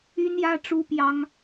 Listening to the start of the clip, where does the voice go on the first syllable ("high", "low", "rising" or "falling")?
high